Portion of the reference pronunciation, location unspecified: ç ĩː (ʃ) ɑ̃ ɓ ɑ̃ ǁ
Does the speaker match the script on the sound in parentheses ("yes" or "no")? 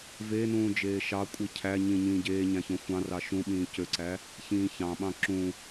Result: no